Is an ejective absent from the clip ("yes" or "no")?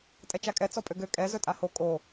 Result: no